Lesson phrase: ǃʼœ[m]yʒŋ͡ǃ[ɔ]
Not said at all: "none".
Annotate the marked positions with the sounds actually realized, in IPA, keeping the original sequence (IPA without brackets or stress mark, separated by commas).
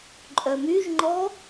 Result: m, ɔ